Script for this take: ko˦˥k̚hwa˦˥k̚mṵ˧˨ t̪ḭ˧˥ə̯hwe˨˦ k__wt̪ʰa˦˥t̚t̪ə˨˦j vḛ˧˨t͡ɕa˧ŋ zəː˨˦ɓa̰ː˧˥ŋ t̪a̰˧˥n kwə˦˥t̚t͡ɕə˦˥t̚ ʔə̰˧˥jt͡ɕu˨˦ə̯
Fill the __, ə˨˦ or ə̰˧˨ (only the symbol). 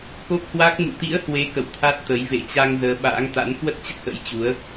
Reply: ə̰˧˨